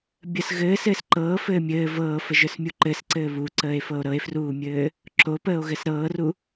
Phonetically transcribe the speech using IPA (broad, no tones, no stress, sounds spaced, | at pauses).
bʲ ə s ɣ ɘː s ɘː s ǃ ɤː f ɘː mʲ ɘː v ɤː f ə ʒ ə˞ s mʲ u ǃ ɘ s ǀ ɘː β u ǀ əː e̯ f ɤ o̯ ɾ ɤ e̯ f r uː mʲ ɘː | ǁ o p əː o̯ ɣ ɘ s ɾ ɤː r u